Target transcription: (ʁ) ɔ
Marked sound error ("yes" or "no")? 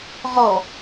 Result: no